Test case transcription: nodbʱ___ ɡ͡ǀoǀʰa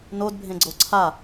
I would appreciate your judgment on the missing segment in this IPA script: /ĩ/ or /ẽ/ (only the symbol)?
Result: ẽ